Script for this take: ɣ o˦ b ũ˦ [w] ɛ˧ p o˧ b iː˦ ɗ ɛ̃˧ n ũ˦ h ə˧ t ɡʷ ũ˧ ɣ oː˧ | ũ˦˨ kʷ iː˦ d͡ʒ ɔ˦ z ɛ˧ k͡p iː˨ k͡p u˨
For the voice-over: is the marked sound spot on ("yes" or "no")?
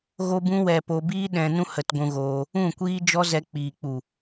yes